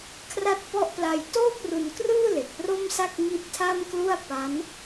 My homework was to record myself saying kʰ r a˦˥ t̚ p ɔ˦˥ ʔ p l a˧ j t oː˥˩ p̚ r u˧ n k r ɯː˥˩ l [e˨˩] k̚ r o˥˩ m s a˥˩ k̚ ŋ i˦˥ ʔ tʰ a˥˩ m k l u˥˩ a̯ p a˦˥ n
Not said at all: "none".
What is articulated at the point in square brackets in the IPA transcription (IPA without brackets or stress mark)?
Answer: e˨˩